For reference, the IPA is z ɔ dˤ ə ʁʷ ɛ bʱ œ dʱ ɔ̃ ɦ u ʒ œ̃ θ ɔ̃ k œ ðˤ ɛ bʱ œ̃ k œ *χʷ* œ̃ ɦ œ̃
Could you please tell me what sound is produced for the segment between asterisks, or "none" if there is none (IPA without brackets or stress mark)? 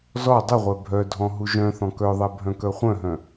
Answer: χʷ